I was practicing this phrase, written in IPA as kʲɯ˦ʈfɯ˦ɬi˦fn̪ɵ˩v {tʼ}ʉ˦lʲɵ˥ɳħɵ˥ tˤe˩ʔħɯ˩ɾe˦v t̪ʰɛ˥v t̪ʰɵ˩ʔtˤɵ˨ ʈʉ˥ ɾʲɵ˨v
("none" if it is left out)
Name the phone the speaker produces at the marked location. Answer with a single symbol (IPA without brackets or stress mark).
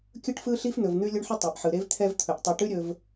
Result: n̪